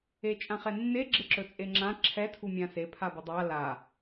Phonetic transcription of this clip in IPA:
e t͡ʃʼ ã χ ɛ nː e ɡ͡ǁ ɪ ǁ ɵ t͡sʼ e ŋ͡ǁ ã ǁʰ ɛ tʰ u mʲ ã s e pʰ a b ə dˤ a l a

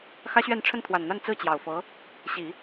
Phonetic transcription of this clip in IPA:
x ä˥ ɕ ɥ ɛ˥˧ n ʈ͡ʂʰ ə˥˩ n t̪ʰ w a˨˩ n n̪ a˥˧ n t͡s ɹ̩˥˩ t͡ɕ j ɑ˨˩ ʊ̯ f ɤ˧˥ | ɕ i˨˩˦

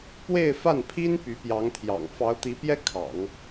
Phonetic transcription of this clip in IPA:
p w e˥˧ ɪ̯ f a˥˩ n pʰ i˥ n p y˧˥ p j ɑ˧˥ ŋ t̪ʰ j ɑ̰˨˩ ŋ f ɑ˧˥ ʊ̯ t̪ i˧˥ p j ɛ˥ kʰ ɑ̰˨˩˦ ŋ

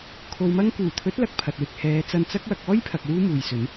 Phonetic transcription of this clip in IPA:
kʰ o˨ w m ɐ˧ ŋ k uː˨˩ t̪ʰ ɵ˨˥ t̚ l ɐ˨˥ k̚ pʰ ɐ˨ t̚ w ɪ˧ k̚ h ɛː˨˧ t͡s ɐ˧ n t͡s ɐ˥ k̚ w ɐ˨˥ k̚ ɔː˥ j pʰ ɐ˨ k̚ w uː˥ m uː˨ j s ɵ˨˥ n

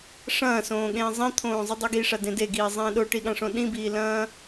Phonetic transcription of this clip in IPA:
ʂ ɐ̃ː s õː ɠ ẽː zˤ ĩ t̪ʰ õː zˤ ɵ dˤ i ɡ i ʂ a d ẽ d e ɡ iː zˤ ẽː ɗ o ʈ i ɠ ã ʂ õ ɗ ĩ b iː l ɐ̃ː

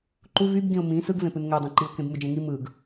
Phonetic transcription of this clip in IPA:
ǃ u v y b ɡ ĩ ʊ̯ m ĩ s ɯ ɡ v ẽ p ɯ n ŋ ø dˤ ĩ ǃ i ʊ̯ k ẽ b m ɯ d͡ʒ ẽ ŋ i m ɯ ɡ

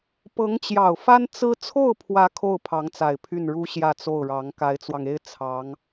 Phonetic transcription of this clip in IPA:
p ɤ˧˥ ŋ t͡ɕ j ɑ˨˩ ʊ̯ f a˥ n t͡s ɹ̩˥ t͡sʰ o˥˩ ʊ̯ pʰ w ä˧˥ kʰ o˥˩ ʊ̯ pʰ ɑ˧˥ ŋ t͡s a˨˩ ɪ̯ pʰ y˥˩ n ɻ u˥ ɕ j ä˥˧ t͡s o˥˩ ʊ̯ ɻ ɑ˧˥ ŋ k a˧˥ ɪ̯ t͡s w ɑ˧ ŋ e˥ ɪ̯ t͡sʰ ɑ˧˥ ŋ

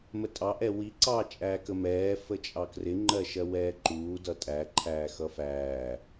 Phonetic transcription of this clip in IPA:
m ə tʼ ɑ ʔ ɛ w i ǀ ɑ t͡ʃʼ æː k ə m ɛː f ə t͡ʃʼ ɑ k r ɪ ŋ͡ǃ ɜ ʃ ɜ w ɛː ǃ uː d ʌ tʼ æ ǃʰ æː x ʌ f æː

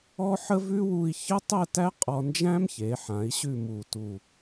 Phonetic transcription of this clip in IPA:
ɔ˥ ħ ə˥ v ʉ˥ w u˧ i̯ ç ə˥ tˤ ɛ˥˧ t æ˥ qʼ ɔ˧ n d͡ʒ æ̃˥ m ç e˩˧ ħ ã˩˧ i̯ ɕ ʉ˥˧ m u˧˩ t u˧˩

